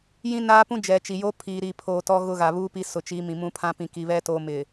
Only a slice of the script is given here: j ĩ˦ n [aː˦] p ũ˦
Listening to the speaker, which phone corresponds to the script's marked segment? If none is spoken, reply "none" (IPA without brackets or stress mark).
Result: aː˦